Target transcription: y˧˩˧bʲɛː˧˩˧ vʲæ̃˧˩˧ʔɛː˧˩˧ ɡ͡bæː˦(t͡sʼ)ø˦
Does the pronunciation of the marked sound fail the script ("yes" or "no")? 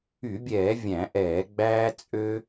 no